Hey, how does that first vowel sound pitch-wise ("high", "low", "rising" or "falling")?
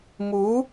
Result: rising